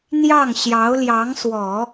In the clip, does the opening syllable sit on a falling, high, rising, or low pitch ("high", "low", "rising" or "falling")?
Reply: falling